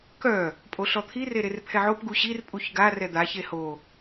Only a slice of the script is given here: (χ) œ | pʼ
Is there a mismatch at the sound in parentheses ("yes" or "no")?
yes